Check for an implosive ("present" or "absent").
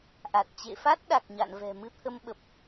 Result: present